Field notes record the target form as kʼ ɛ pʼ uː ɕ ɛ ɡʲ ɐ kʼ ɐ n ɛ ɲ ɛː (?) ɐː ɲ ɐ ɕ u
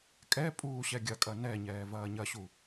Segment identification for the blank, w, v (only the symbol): v